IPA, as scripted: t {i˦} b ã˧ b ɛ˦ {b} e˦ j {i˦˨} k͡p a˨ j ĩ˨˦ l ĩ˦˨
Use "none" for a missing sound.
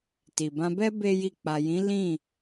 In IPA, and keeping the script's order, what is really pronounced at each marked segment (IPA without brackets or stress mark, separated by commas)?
i˨, b, i˦˨